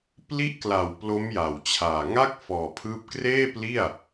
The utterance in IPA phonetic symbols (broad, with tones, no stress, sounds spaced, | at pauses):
p l i˦˥ ʔ k l a˨˩ w p l o˦˥ m j a˨˩ w t͡ɕʰ aː˨˩ ŋ a˥˩ k̚ f ɔː˨˩ pʰ ɯː˦˥ p̚ k r eː˥˩ p l i˥˩ a̯